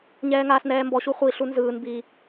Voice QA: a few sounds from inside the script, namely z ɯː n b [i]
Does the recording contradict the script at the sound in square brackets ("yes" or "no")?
no